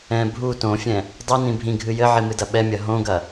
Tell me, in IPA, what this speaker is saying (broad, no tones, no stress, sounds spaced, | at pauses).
ɛ̃ bʱ u t õ fʲ ɛ̃ | dˤ i n ĩ bʱ ĩ ɡʱ ɨ j ɘ ʕ i m ɨ d ɐ ɓ ɛ mʲ ɐ ɦ õ ɡ ɐ